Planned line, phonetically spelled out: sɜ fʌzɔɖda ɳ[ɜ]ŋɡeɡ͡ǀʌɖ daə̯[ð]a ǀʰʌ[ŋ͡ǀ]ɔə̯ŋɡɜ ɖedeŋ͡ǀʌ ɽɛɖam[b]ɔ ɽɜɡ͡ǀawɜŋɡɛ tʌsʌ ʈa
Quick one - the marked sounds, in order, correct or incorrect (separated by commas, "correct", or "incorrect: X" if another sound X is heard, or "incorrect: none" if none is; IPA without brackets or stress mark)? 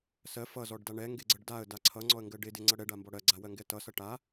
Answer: incorrect: ɛ, incorrect: d, correct, correct